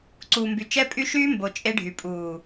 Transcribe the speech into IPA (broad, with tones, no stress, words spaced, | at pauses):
ǀuː˨mby˨ t͡ʃɛ˦pʼy˦ ʃyː˦ mbo˨ t͡ʃʼe˦ɖʱy˨ pʼuː˨